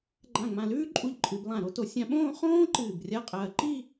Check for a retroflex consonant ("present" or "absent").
absent